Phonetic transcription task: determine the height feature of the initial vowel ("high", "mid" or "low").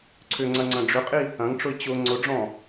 high